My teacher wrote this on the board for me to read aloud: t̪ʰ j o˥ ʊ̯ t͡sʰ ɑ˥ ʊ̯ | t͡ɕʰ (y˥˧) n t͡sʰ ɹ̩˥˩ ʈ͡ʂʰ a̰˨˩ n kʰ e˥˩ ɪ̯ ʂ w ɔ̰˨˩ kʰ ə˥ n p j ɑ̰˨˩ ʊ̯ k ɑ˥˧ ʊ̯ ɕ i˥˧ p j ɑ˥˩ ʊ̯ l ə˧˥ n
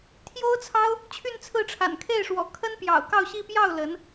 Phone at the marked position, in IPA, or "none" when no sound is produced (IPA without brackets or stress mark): y˥˧